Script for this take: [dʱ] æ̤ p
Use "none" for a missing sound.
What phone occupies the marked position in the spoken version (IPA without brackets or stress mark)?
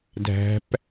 dʱ